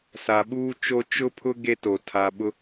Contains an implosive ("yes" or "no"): yes